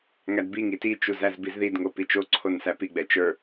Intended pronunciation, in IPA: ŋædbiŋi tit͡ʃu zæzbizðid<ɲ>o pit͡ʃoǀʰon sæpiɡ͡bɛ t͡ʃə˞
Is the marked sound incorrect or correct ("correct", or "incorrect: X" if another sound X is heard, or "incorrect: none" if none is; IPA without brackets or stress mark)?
incorrect: ŋ